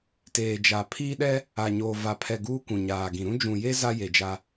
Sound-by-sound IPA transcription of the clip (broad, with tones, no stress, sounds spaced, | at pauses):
t eː˨ d͡ʒ a˨ pʰ iː˦ ɗ ɛ˦ | a˨ ɲ oː˨ v a˨ pʰ ɛ˨ ɡ uː˦ kʷ ũ˨ ɲ aː˨ ɡ ĩ˨ ɾ ũ˦ d͡ʒ ũ˨ j e˦ z a˦ j e˨ d͡ʒ a˦